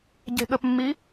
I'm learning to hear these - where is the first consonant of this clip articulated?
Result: palate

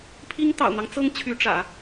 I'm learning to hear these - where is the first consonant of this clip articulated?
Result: lips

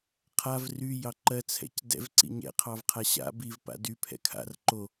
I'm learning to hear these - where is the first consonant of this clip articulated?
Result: uvula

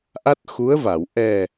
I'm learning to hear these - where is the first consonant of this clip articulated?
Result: throat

